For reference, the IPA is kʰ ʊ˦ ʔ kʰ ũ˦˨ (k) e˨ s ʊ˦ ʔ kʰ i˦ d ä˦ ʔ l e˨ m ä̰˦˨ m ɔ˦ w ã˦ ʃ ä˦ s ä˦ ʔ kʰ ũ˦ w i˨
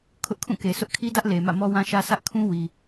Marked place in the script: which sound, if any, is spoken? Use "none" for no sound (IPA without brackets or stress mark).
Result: k